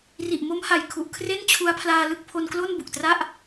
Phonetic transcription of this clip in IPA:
ri˨˩ʔmo˦˥mha˨˩jkʰu˨˩ʔ kʰre˥˩nt͡ɕʰu˦˥a̯pʰlaː˧lɯ˥˩k̚ pʰo˧nklo˥˩n bu˨˩k̚tra˥˩ʔ

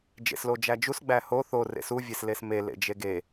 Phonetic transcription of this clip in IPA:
d͡ʒḛslod͡ʒæd͡ʒus ɡ͡bæho θo rḛsu vʲeslesme lḛd͡ʒeɡe

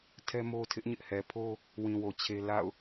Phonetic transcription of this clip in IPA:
tʰɛ˦mo˦ tʰɪ˦ʔɲɪ˦ʔhɛ˨ pʰo˦ | wĩ˨wo˨ t͡ɕʰe˦ la̰˦˨ʊ̯

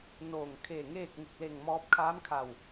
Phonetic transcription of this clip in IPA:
noː˧˩ŋkʰe˧˩ ŋeː˥˨k̚ŋu˧˩k̚ le˧˩ŋmɔː˧p̚kʰaː˧˥m kʰa˧˩w

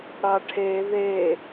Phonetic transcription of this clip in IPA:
ɽɑʈʰe ðe

